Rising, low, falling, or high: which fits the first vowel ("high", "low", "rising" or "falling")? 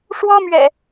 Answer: high